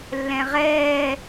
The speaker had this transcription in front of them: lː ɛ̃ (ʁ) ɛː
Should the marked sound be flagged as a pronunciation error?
no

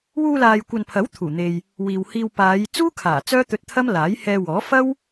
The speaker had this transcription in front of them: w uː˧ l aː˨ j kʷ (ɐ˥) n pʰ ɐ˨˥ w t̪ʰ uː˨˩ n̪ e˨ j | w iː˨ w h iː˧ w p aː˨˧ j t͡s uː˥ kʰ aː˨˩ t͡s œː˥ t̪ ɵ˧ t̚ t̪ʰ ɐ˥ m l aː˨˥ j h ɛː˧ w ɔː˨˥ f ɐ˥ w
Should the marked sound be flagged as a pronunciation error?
yes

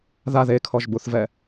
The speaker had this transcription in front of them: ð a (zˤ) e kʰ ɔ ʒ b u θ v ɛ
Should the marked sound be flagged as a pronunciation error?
yes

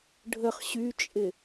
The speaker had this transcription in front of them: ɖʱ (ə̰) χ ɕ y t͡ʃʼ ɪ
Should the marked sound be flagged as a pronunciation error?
yes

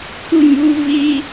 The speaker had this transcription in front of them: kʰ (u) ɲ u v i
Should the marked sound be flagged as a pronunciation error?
no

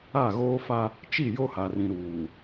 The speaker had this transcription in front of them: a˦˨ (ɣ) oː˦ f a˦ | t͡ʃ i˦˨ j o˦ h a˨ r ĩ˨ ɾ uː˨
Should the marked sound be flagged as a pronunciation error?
no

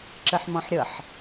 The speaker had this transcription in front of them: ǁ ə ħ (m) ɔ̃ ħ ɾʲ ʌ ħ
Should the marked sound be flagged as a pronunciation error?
no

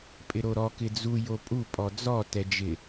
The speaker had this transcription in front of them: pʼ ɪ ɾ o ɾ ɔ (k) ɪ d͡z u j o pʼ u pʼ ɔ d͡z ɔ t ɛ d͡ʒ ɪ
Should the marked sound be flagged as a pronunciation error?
no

